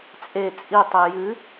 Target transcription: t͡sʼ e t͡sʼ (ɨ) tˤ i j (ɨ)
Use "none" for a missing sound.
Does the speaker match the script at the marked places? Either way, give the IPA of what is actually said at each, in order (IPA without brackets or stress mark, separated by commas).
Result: i, ɨ